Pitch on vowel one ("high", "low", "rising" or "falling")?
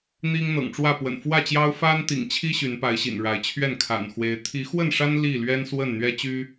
high